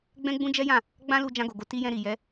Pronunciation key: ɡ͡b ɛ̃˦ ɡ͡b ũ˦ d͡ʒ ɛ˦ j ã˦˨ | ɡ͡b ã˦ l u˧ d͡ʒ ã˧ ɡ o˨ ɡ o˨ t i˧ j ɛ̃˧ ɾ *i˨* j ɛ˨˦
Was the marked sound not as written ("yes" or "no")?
no